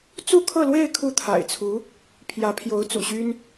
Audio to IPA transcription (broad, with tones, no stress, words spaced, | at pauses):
t͡su˥˧kʰɤ˥˧lwe˥˧ɪ̯ kʰu˥˩t̪ʰa̰˨˩ɪ̯t͡sʰu˧˥ | pʰjä˧˥ pʰjo˧˥ʊ̯t͡sṵ˨˩ɕy˥n